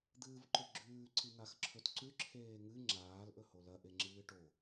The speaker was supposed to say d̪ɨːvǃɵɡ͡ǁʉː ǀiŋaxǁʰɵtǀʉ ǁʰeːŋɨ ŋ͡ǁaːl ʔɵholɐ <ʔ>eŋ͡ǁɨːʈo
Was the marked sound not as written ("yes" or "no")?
no